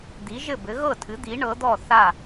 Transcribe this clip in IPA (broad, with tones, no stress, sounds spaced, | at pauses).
d̪ i˩˥ ʒ ɘ˥˩ b ɘ˩˥ ɣ ɤ˥˩ tʰ ɨ˩˥ d̪ i˩˥ ɳ ɤ˩˥ d̪ ɔ˥˩ θ a˥˩